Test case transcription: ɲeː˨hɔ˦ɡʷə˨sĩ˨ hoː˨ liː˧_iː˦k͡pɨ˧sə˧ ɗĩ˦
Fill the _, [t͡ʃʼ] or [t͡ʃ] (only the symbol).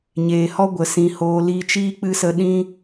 t͡ʃ